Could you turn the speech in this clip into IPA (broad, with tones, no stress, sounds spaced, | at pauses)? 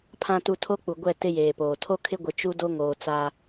pʰ ã˨ t u˨ tʰ o˦ k͡p u˨ ɡʷ ɛ˦˨ t ɪ˦ j eː˨ p oː˨ tʰ o˦ kʰ ɪ˦ ɡʷ ɪ˨ t͡ʃ u˦ d o˦ ŋ oː˨ t͡s a˦